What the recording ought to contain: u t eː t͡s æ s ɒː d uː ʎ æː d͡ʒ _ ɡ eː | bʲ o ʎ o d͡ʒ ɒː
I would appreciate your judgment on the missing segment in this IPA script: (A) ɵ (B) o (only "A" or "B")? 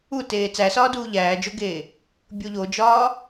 B